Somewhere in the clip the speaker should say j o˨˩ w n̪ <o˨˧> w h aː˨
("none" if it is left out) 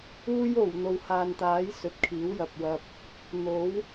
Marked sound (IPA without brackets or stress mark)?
o˨